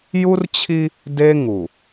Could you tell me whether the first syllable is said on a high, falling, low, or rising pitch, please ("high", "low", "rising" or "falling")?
high